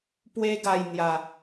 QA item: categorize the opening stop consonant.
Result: plain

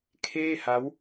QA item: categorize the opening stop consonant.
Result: aspirated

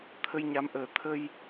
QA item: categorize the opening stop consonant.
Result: aspirated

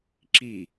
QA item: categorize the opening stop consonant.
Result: click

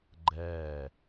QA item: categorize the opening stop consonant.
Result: click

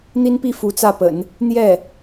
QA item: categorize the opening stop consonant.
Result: plain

